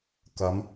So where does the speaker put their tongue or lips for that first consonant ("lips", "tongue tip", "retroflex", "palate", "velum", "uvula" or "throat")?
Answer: velum